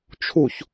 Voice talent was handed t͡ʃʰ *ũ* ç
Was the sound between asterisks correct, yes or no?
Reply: no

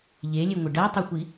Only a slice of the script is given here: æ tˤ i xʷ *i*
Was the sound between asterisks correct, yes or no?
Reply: yes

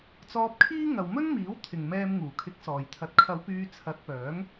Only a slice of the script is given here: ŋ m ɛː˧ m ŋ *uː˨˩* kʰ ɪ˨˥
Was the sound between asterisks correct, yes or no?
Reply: yes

